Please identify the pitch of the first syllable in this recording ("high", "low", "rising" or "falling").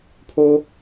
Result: high